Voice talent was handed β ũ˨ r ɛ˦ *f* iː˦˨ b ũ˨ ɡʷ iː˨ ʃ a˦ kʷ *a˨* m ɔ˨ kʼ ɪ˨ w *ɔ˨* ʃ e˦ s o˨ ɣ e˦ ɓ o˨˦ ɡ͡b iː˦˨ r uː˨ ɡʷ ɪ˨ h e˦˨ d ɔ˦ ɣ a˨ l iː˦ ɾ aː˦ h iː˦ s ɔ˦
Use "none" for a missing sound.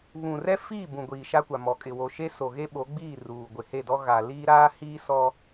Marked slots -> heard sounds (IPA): f, a˨, o˨

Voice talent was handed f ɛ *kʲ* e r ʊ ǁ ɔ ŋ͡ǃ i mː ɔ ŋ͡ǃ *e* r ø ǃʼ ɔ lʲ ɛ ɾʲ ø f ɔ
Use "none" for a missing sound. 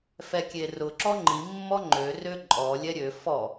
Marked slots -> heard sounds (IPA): kʲ, ø

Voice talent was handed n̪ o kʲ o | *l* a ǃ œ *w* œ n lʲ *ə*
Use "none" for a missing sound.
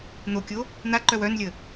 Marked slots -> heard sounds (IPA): n̪, w, ə

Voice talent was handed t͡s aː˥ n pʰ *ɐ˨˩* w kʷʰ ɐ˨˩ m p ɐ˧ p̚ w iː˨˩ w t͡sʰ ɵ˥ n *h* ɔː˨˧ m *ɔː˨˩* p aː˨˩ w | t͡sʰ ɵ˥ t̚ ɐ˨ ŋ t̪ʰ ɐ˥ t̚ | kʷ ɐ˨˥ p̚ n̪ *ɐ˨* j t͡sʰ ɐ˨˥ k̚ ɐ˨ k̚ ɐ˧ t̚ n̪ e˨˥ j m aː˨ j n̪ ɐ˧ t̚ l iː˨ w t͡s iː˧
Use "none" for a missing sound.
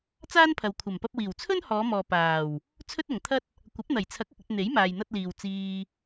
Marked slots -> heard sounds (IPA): ɐ˨, h, ɔː˨, ɐ˨˩

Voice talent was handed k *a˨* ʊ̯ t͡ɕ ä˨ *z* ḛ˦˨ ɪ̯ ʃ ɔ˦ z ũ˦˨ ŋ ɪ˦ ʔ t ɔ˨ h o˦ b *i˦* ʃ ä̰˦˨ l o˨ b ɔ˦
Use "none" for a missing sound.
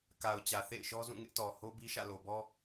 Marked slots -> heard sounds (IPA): a˨, θ, i˦

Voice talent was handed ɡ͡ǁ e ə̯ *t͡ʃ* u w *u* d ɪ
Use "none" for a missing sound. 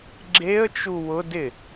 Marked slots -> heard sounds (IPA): t͡ʃ, ʊ

